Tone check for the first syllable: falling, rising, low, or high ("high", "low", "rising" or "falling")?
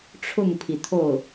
falling